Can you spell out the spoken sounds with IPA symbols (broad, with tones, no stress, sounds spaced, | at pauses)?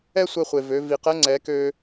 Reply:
ɛ˥ sʷ ɛ˧ χʷ e˩ v ø˩˧ v i˩ q ɛ˧˥ ŋ͡ǀ ɛ˩˧ k ø˧